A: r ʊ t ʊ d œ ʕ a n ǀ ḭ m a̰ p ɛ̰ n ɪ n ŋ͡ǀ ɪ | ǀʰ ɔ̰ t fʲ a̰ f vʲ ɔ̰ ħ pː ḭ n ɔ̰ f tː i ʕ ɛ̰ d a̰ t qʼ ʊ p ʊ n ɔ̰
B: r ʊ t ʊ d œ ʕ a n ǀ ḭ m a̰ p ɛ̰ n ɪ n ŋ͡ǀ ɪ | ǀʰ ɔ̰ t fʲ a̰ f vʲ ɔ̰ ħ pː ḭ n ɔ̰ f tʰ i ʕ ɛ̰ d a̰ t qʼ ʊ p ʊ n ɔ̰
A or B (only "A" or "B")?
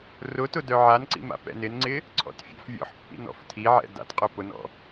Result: B